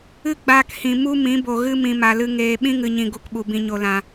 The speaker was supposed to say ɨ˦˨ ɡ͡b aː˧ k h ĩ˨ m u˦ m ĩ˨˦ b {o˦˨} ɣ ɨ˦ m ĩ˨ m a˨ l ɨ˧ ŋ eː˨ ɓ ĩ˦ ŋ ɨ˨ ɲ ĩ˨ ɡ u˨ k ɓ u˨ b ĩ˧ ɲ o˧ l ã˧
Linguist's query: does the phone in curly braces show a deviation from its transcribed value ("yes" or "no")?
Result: yes